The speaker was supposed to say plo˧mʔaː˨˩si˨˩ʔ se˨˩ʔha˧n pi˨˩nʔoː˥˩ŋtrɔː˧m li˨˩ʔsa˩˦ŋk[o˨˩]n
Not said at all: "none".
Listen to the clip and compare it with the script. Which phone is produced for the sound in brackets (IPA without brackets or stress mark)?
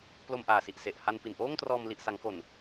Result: o˨˩